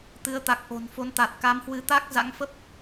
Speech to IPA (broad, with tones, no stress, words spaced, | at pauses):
t̪ɨ˨˦ə̯t̪a˨˩k̚ʔo̤˨˩n fo˨˦nt̪a˨˩t̚ka˨˦mhwɨ˧ t̪a˦˥k̚ za̰˧˥ŋfə˦˥p̚